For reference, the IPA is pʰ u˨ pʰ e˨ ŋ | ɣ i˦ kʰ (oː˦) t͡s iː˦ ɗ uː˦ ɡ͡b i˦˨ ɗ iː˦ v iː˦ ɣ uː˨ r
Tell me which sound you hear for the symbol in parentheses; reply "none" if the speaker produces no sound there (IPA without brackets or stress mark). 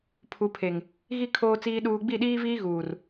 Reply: oː˦